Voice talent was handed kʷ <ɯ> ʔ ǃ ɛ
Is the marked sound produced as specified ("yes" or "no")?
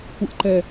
yes